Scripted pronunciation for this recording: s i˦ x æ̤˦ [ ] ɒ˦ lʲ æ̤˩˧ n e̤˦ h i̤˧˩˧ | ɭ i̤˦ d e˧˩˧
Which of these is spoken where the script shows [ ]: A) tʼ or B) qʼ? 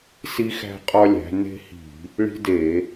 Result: B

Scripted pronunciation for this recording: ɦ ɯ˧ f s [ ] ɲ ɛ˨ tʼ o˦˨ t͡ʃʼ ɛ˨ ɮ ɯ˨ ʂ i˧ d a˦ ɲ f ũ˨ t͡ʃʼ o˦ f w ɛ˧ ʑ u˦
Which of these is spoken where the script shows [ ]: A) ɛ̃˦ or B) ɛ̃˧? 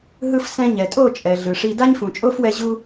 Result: B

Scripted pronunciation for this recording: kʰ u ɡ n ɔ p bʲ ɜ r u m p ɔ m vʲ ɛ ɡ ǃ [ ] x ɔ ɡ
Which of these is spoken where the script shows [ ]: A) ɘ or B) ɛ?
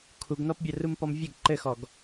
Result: A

